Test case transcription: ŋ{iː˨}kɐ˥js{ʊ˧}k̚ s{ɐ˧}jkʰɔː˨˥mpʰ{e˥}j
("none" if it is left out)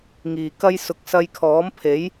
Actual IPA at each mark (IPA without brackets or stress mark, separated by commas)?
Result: iː˨, ʊ˧, ɐ˧, e˨˥